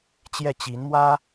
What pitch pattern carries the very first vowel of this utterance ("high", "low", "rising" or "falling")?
falling